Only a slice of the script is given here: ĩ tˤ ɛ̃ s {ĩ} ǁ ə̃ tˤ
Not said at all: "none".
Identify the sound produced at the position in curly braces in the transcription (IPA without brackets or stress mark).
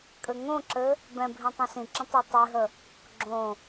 ĩ